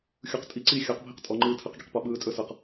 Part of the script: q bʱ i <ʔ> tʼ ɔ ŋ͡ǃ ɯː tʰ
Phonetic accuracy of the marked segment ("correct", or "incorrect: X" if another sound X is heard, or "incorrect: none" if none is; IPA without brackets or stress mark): incorrect: q